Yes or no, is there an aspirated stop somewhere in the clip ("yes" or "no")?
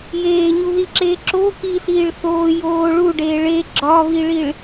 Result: no